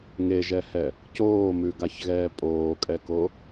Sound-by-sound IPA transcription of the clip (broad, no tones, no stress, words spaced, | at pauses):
ŋeʒɛhɛ | coːmʉɡaçɣɛː pʼoːkʼɛko